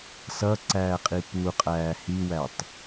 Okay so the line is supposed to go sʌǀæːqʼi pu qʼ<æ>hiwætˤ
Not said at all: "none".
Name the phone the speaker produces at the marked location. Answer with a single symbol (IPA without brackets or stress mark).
æː